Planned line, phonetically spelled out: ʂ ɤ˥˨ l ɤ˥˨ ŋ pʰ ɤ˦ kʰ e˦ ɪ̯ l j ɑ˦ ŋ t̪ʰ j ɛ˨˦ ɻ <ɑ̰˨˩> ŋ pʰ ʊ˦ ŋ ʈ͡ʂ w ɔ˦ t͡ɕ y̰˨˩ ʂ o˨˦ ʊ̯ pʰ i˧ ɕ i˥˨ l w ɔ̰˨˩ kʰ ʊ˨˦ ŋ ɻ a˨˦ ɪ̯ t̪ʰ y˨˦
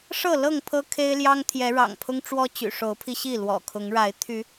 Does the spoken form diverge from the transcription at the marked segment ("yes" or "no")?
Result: no